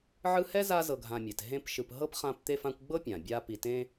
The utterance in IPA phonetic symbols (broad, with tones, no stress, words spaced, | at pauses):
ʕɯ˦hɛ˥za˦ zɤ˨ɡʱã˨mʲɛ˩t ɦẽ˦p ʃɯ˨pɦɤ˥pχã˦p t̪e˦fã˦kʷɡ͡bɤ˥pʲã˩ bʲa˦ pi˨tẽ˥